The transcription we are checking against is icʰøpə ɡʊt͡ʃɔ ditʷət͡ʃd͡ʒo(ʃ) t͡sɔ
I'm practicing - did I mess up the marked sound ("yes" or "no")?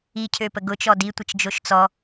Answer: no